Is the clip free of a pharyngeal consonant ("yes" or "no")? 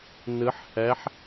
no